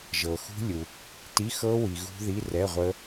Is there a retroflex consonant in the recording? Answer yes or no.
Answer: no